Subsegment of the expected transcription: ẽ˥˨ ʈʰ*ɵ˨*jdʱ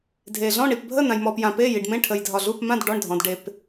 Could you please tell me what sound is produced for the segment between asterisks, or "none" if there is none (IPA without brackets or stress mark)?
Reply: ə˨